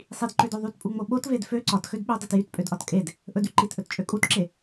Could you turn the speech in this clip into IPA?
sˤ i d ǃ ø d o ðˤ y t pʼ u ŋ͡m o ɓ o t v e d f ø ǀ ɒ t x ø d ɓ ø dˤ e t j y t pʼ ø d ʔ ɒ t kʼ e d | ʔ ɵ d y ǃ i t ʔ ɵ t t͡ʃʼ ø kʼ u t ǁ e

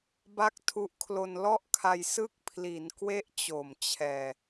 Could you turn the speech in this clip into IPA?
b a˥˩ k̚ tʰ u˦˥ ʔ kʰ l o˧ n l ɔ˥˩ ʔ kʰ a˧ j s ɯ˦˥ k̚ pʰ l i˩˦ n k w e˦˥ ʔ t͡ɕ o˨˩ m t͡ɕʰ ɛː˨˩

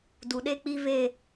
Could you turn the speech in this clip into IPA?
d u˨ ɗ e˦ k͡p i˦ v e˦˨

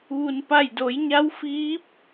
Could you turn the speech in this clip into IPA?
ʋ u˩ n p a˧˩ j d o˩˧ j ɲ a˧˥ w f iː˧˥ p̚

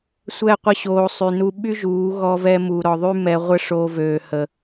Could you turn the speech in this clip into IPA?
sʷ ɛ˦˨ qʷ ə˦ ɕ oː˧ sˤ y˧ n u˦ ɓ y˦ ʒ uː˨˦ ɣ ɔ˧ v ɛ˧ m u˨ ɾ ɔ˨ ðˤ y˦ m ɛ˧ ʁʷ ə˦ ʂ o˧ v øː˨ h ə˨

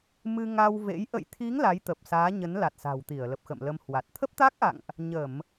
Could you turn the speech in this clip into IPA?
m ɨ˧ ŋ a˧ w v ḛ˧˥ j ʔ ə̰˧˨ j t̪ʰ i˨˦ ŋ l a˨˦ j t̪ ə˨˩ p̚ s aː˨˦ ɲ ə˨˦ n l a˨˩ t̚ s a̤˨˩ w t̪ i˧˩ ə̯ l ə˨˩ p̚ x ə̰˧˨ m l ə˧ m h w a˨˩ t̚ t̪ʰ ə˦˥ p̚ t̪ a˦˥ k̚ ʔ a̰˧˨ ŋ ʔ | ɲ ə˧˩˨ m

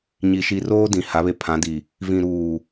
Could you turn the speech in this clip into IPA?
ɲ i˨ ʃ i˨ r oː˦ d ĩ˨ h a˨˦ β e˨ pʰ ã˨˦ d i˨ | v ĩ˨ ɾ uː˨

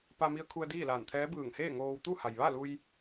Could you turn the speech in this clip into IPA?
p a˧ m i˧ ə̯ kʰ u˧ ə̯ d iː˥˨ l aː˧˩ n t̪ʰ ɛː˧˥ b ɯː˧˩ ŋ h eː˥˨ ŋ oː˧ w t̪ u˥˨ h a˩ j ʋ a˥˨ l u˧ j

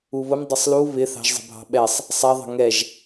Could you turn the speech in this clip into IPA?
u β ʊ m dˤ ə sˤ l u β ɪ θ ɑ̤ ʒ zˤ ə̤ bʱ ɑ̤ ɓ ɛ sˤ | sˤ ɛ ðˤ ə̤ ŋ ɛ ʒ

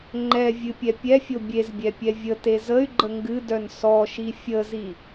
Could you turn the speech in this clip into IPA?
ŋ͡ǃ ɛ vʲ ɨ pʲ ɛ pʲ ɛ fʲ o bʲ e z bʲ ɛ pʲ ɛ vʲ ə t e z ə y̯ ɡ͡ǃ ə ŋ ɡ ɨ d œ n s ɔ ʃ i fʲ ə z i

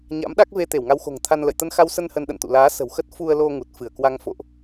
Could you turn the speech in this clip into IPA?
ɲ a̰˧˥ m ɗ a˦˥ k̚ v e˧ t̪ e˧˩ w ŋ a˧ w x o̤˨˩ ŋ t̪ʰ a˧ n l ə̰˧˨ j t̪ ə˧ n x a˧ w s ə˧ n h ə˧ n ɗ ə̰˧˨ n t̪ ṵ˧˨ l aː˨˦ s ə̤˨˩ w x ə˦˥ t̚ f u˧ ə̯ l o˧ ŋ u˨˩ t̚ f ɨ˧˩ ə̯ k w a˧ ŋ f o̰˧˨ ʔ

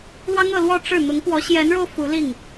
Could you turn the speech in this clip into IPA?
l w ɑ˥ ŋ ɤ˥˧ l w ɔ˥˧ ʈ͡ʂ ɻ̩˥˩ n̪ ʊ˧˥ ŋ p w ɔ˧˥ ɕ j ɛ˧˥ n ɻ o˧ ʊ̯ f u˧˥ l i˥˩ ŋ

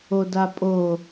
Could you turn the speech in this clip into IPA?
o d a pʼ o

